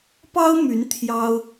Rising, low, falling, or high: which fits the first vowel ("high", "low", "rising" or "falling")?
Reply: high